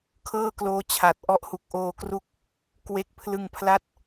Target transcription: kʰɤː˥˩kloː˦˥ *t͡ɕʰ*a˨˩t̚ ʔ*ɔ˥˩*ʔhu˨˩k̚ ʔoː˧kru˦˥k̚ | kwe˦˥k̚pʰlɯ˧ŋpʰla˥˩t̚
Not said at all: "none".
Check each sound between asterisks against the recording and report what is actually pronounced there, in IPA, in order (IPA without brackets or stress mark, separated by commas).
t͡ɕʰ, ɔ˥˩